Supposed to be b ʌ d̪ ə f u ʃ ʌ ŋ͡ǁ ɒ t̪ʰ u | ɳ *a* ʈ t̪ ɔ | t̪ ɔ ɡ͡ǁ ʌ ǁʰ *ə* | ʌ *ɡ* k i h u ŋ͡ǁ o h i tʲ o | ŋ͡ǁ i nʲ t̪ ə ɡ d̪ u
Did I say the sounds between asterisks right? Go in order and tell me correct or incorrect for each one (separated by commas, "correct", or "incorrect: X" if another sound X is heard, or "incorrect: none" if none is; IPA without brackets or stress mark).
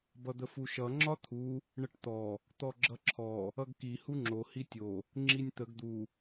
incorrect: ə, incorrect: ɔ, correct